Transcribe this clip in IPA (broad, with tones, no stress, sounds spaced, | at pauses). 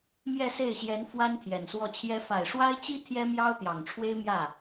m j ɛ˥˧ s e˥˩ ɪ̯ ɕ j ɛ˧˥ n f w a˥ n t̪ʰ j ɛ˨˩ n s w ɔ˥˩ t͡ɕʰ j ɛ˥ f a˨˩ ɪ̯ ʂ w a˥ ɪ̯ t͡ɕ i˥ t̪ʰ j ɛ˥ m j ɑ˥ ʊ̯ t̪ j ɑ˨˩ ŋ ʈ͡ʂʰ w e˥ ɪ̯ m j ä˥˩